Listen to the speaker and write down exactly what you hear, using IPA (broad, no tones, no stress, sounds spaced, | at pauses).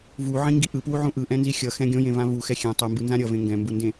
v u ʕ ĩ ŋ ɡ i ʔ ɯ p w u ʕ ũ ʔ ɯ ʔ ɛ̃ n z i xʲ ʌ x ɛ̃ ɡʲ õ j ẽ v ã v u x ɛ xʲ ɛ̃ tˤ ɯ m b ɯ n z ã ɾʲ ʌ v ẽ ŋ ɡ ɛ̃ m b u n d ẽ